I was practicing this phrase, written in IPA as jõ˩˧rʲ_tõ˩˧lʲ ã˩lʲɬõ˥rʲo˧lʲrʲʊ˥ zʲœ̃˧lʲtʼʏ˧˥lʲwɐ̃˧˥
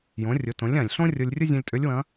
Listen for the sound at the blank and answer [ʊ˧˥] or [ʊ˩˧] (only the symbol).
ʊ˩˧